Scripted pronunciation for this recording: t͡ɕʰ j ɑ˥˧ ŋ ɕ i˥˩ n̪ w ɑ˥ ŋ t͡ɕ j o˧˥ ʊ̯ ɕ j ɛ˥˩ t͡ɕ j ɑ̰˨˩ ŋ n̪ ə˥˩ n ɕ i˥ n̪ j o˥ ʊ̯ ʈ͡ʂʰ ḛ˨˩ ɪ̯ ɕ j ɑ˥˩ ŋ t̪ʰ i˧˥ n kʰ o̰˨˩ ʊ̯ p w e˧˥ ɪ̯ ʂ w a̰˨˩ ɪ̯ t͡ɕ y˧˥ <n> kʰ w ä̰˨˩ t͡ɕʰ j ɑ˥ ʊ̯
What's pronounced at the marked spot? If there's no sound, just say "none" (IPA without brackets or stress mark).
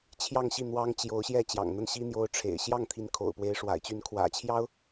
n